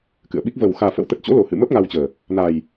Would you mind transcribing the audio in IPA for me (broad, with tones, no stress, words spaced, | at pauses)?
kɨ̰˧˨ə̯ɓi˦˥k̚ və˨˩w xaː˨˩fə̰˧˥wt̪ə˨˩t̚t͡ɕo̰˧˥ lo˨˩hɨ̰˧˨mə˦˥p̚ ŋa˧wt͡ɕəː˨˩ | na˨˩j